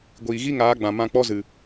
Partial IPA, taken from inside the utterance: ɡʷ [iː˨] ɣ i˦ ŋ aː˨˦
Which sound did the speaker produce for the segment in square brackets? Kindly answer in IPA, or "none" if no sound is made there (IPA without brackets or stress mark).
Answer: iː˨